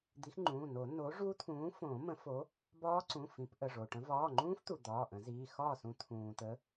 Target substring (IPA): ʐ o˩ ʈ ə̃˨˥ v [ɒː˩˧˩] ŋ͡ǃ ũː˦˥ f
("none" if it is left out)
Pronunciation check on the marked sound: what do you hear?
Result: ɒː˩˧˩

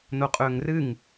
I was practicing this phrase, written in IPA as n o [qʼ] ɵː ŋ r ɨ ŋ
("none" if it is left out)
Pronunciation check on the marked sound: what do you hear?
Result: qʼ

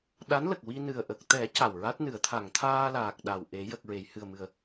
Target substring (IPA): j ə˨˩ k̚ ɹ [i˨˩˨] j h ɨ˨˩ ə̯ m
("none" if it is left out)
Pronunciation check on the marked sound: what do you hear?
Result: e˨˩˨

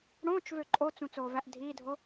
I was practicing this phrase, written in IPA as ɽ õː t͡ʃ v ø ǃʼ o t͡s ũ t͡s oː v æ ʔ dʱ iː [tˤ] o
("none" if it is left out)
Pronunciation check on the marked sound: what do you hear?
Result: dʱ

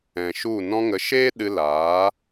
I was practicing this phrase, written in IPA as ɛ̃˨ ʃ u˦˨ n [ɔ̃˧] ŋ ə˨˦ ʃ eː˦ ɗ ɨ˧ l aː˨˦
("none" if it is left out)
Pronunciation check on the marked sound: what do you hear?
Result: ɔ̃˧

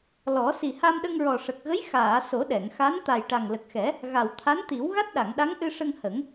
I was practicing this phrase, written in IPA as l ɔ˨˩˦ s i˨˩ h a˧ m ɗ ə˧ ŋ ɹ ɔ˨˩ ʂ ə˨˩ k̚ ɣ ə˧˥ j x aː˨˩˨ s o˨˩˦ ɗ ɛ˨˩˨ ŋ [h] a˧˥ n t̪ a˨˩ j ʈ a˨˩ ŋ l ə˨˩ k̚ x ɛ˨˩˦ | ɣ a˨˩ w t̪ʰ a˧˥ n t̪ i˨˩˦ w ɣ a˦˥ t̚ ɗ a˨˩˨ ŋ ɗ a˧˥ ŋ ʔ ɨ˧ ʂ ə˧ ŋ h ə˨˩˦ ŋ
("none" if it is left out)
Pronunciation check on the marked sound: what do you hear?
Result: x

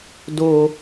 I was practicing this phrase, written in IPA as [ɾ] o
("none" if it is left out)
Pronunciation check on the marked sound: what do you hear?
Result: d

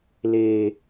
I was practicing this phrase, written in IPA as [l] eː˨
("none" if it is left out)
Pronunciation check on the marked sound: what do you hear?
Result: l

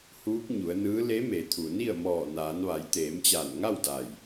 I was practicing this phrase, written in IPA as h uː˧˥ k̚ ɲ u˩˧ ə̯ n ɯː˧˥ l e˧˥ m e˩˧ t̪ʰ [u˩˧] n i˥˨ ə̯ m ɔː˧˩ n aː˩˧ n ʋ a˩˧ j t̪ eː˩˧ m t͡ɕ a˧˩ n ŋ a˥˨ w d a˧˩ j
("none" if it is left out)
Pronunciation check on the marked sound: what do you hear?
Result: u˩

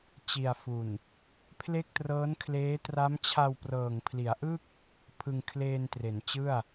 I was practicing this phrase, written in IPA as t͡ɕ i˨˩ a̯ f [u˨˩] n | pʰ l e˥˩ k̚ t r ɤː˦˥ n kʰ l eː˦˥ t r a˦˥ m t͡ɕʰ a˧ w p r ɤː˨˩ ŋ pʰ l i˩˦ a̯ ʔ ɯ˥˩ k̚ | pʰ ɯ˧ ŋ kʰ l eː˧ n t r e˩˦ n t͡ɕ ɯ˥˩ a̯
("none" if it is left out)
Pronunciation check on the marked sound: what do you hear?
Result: u˨˩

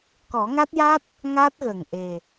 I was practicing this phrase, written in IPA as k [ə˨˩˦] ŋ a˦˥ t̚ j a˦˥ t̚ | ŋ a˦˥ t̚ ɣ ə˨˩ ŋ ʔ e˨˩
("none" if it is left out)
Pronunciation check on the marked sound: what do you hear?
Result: ɔ˨˩˦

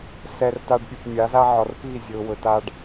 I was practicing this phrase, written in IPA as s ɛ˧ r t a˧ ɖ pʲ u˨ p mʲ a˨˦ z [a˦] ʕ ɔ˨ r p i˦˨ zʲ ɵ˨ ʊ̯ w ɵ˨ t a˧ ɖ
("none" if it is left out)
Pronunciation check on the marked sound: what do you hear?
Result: a˦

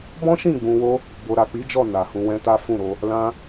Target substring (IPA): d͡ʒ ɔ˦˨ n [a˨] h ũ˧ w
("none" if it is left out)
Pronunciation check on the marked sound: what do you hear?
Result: a˨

